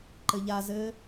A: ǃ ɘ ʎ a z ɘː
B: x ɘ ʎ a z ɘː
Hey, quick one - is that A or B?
A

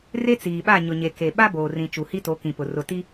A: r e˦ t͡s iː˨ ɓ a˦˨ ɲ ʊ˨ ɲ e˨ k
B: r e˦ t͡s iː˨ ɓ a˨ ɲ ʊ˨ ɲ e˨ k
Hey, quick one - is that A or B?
A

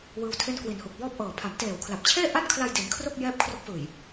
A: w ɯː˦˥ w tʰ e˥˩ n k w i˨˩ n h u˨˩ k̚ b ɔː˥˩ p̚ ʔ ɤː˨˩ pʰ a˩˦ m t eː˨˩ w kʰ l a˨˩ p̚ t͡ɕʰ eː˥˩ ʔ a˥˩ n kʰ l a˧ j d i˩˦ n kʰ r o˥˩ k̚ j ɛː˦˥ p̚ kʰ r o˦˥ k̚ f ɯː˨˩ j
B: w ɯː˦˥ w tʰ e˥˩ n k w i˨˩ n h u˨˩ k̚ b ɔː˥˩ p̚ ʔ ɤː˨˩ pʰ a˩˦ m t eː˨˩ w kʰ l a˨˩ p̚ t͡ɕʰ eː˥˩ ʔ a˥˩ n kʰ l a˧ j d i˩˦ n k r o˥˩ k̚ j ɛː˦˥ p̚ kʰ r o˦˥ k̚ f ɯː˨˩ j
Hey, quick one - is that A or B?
A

